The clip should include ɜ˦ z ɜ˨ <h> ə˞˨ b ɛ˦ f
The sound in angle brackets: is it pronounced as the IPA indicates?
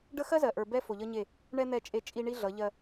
no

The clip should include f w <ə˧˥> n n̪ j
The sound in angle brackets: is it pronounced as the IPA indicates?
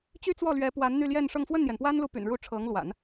no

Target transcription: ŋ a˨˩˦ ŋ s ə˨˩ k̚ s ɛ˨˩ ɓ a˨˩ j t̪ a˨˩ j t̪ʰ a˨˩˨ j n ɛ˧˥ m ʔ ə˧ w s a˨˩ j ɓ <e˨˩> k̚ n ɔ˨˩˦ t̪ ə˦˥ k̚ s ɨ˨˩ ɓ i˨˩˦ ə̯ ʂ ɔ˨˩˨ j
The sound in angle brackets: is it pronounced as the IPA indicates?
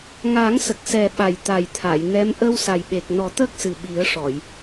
yes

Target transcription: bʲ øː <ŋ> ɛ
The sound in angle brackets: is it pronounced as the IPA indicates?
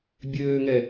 yes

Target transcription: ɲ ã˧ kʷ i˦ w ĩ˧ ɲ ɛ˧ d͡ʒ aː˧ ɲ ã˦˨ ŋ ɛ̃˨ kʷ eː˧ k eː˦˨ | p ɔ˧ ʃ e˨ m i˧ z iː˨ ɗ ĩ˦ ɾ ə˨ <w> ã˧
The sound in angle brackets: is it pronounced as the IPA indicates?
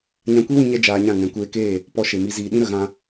no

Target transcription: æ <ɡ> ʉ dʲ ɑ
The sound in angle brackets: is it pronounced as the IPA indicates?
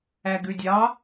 yes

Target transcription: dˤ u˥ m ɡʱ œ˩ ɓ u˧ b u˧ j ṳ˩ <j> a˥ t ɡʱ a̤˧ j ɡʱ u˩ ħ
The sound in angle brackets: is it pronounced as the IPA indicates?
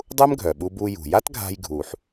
yes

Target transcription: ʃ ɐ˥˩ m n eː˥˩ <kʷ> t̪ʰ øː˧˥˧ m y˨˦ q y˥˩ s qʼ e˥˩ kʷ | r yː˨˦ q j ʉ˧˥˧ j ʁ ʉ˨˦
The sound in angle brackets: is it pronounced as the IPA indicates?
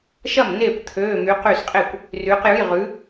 yes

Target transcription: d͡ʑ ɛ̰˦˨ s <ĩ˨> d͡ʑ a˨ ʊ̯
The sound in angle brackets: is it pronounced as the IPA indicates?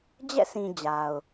yes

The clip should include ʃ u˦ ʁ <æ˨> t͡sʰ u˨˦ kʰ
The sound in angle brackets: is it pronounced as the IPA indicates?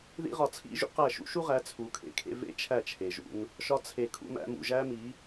no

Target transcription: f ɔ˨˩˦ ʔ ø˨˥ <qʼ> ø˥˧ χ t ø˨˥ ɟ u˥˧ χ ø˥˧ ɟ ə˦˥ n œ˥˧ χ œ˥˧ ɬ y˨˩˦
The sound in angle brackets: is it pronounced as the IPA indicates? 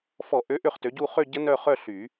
no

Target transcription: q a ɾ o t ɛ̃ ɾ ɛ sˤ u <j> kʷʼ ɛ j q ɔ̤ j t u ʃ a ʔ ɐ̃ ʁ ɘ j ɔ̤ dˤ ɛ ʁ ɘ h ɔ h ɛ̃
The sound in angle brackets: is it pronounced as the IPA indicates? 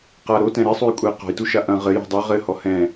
yes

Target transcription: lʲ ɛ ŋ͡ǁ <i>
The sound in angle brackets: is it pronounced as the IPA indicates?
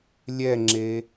no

